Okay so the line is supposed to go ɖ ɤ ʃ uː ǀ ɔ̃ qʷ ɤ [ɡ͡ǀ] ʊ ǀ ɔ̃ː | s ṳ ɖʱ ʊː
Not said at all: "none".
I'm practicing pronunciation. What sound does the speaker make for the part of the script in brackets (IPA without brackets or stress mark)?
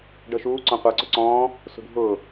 ǀ